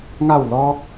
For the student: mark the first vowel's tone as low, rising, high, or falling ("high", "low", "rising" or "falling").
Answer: falling